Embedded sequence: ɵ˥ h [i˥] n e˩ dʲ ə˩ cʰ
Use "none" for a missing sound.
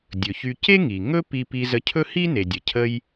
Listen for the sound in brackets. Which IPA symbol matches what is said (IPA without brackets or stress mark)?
i˥